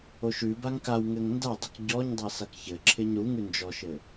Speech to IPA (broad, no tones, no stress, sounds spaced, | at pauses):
o ʃ ʉ b a ŋ k a w ŋ ɘ ŋ n d a dˤ ɘ k ɟ ɔ ɲ dˤ ɛ s a k ç ɘ ǁʰ ɪ ɲ ɾ u ŋ ʉ n d͡ʒ ɔ ʃ ɘ